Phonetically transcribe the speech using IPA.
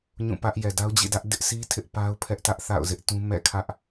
ɲũ˦˨pä˦ʔ jɛ˨da˦ʊ̯d͡ʑḭ˦˨dä˦ʔ dɪ˦ʔsʰi˦ tʰɪ˦ʔpa˦ʊ̯pʰɛ˦ʔ tä˦ʔ θa̰˦˨ʊ̯zɪ˦ʔtũ˦ mɛ̰˦˨kʰä˦ʔ

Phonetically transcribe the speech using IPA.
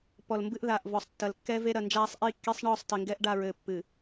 pɔ˨lmbɨ˦ʔ ðaː˨ʔvɔ˨sˤ tːɐ˨lkːɛ˦ ve˦ɾɐ˨nd͡ʒaː˦sˤ ʔi˦kːe˦sˤ ɳɔː˦˨sˤ tɘ˨ŋɡɛ˦ʔ ɖa˦˨ɹɘː˨ pːɨ˨

